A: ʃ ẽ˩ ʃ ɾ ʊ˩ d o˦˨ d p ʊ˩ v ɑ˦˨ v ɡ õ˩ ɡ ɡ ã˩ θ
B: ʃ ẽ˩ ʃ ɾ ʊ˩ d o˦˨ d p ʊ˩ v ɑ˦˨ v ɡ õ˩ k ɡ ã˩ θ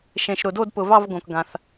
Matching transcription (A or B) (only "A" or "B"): B